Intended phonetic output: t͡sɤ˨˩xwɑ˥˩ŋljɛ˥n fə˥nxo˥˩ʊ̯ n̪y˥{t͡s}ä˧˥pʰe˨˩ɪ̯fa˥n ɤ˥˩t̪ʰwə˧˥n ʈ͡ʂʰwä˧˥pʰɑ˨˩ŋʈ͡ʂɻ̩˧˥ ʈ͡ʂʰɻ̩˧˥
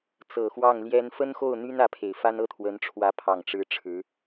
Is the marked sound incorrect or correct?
incorrect